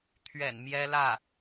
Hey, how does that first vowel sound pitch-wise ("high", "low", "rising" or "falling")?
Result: low